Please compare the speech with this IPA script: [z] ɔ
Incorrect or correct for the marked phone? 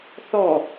incorrect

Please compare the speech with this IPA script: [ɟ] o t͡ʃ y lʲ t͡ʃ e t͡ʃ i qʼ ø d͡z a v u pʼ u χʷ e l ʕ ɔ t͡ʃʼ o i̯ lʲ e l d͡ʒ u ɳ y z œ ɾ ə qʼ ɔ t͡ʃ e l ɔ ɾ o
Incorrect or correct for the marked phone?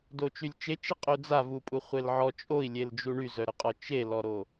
incorrect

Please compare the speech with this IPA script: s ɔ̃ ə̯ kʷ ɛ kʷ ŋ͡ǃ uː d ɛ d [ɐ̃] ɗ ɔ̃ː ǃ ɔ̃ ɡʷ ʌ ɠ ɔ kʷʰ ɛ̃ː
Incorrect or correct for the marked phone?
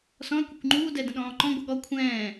incorrect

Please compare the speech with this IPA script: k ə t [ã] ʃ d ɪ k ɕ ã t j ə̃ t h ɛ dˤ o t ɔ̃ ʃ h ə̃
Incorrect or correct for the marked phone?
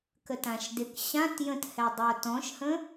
correct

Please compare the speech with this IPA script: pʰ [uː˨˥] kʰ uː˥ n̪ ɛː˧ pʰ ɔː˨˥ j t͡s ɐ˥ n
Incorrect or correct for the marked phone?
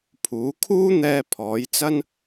correct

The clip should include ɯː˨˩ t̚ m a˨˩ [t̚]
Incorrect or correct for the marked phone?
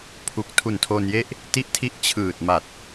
correct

